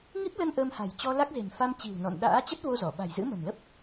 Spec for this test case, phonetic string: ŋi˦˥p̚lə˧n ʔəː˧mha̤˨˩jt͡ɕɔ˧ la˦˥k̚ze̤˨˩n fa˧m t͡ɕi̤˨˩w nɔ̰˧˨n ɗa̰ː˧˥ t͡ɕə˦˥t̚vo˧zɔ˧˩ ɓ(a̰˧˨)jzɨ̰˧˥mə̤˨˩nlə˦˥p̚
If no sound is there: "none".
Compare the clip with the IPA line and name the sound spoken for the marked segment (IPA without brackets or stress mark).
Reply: a̤˨˩